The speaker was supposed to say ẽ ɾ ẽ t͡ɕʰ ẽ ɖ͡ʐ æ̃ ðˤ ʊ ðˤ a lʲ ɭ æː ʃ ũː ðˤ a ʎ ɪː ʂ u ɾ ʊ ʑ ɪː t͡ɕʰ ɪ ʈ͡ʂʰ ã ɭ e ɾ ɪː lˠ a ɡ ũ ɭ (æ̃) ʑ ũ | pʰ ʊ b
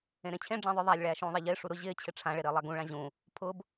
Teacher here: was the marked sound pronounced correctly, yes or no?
no